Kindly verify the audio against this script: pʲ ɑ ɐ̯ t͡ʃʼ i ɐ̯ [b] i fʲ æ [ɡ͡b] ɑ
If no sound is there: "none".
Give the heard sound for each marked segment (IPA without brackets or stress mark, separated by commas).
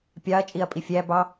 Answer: pʼ, b